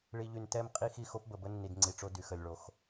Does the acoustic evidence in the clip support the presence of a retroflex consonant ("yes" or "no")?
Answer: yes